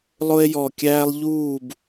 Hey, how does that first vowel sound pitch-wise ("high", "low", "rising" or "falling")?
high